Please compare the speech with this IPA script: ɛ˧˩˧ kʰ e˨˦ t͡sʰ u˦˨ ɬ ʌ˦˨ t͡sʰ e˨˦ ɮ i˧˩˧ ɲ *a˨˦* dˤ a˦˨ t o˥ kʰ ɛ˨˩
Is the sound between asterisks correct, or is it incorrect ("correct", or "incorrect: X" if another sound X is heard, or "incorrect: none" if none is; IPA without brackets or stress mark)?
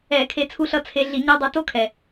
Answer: incorrect: a˧˥˧